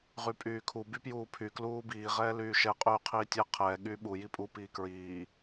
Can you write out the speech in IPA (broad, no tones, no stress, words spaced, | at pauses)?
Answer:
ʁypʼyːkʰu bypjuːpʰy kluːbiː ʁɛːlyːʃɛ qʼyːqʰiːtʲɛ qʰɛː ɠyːɓu jipʼu piːkɹiː